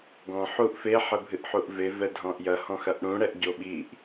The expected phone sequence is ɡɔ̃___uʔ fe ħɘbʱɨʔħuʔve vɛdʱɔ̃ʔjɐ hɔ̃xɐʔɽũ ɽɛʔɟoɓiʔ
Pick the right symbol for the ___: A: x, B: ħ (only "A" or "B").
B